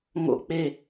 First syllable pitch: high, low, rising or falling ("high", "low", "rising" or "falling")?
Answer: high